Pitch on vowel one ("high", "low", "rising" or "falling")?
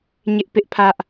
high